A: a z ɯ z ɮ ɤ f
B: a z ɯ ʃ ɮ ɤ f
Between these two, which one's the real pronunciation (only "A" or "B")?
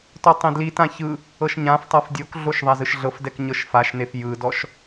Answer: B